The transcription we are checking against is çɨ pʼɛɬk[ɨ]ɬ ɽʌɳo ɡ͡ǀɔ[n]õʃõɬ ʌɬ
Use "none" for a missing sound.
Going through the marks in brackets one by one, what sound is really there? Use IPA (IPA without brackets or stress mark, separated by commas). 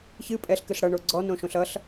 ɨ, n